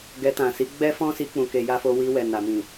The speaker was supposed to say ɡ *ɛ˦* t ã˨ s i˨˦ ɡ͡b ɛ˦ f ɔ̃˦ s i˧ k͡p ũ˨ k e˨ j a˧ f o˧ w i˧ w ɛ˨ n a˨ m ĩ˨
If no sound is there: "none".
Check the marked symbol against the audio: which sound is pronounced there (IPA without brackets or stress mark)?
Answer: ɛ˧